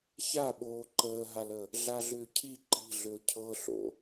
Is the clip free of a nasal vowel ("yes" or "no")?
yes